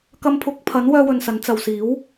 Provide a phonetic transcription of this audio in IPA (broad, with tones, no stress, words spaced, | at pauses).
kɐ˧mpʰʊ˨˥k̚pʰɐ˨˥n wœː˥wɵ˧nsɐ˨˥n t͡sɐ˨wsiː˨˥w